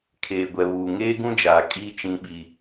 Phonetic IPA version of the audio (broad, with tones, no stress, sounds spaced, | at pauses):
kʰ eː˨ ɡʷ ɛ˨ β uː˨ ŋ eː˦ ɡ ũ˦ d͡ʒ aː˨ kʼ iː˦ t͡ʃ ĩ˨˦ ɓ i˨